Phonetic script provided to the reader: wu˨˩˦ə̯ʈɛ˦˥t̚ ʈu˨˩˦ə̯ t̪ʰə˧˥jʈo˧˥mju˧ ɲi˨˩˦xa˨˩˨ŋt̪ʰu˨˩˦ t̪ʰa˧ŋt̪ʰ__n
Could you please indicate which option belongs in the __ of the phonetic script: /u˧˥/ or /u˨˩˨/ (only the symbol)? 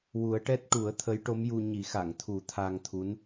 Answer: u˧˥